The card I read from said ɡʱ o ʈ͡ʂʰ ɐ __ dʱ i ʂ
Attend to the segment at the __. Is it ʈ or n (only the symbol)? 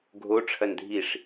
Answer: n